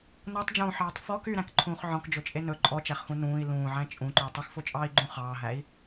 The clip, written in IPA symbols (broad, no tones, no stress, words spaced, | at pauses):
notˤd͡ʒũːħɑːtˤ fɔk yɾæ̃kǃʰũːχ ʕɔ̃kd͡ʒɵt͡ʃʼe nɵ ǃʼɔt͡ʃæχxũ nũːi̯ lũːʕæ̃ t͡ʃʼũǃʉu̯ tˤʉxfot͡ʃʼɑːi̯ ɡ͡ǃũ χɑːɦæi̯